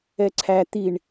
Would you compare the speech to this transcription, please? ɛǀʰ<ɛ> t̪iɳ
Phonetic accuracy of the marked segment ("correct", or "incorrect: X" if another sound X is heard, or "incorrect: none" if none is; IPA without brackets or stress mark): incorrect: æ